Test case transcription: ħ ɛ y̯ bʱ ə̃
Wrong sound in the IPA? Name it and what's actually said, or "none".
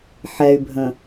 none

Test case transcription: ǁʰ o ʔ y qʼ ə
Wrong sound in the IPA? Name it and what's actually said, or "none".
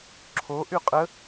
none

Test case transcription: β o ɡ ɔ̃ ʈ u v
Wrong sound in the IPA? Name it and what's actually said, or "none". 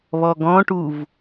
o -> ɔ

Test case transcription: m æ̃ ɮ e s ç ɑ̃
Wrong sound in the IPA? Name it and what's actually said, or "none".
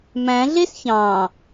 none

